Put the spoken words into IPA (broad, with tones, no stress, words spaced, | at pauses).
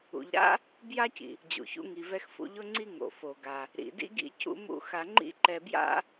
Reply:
ṵ˩ʎɾa̰˥ | bja˥cḭ˩ | d͡ʑṵ˩çṵ˥ŋi˩ vɛ˧xfṵ˧ʎʊ˥ŋ͡ǀi˥ ŋo̰˩fo˩ɡa˩ | ɾḭ˩dḭ˥ɡḭ˥ cṵ˥mṵ˥xa˧ ŋ͡ǃḭ˥ǃɛ˧bja̰˥